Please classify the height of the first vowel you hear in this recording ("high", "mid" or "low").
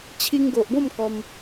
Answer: high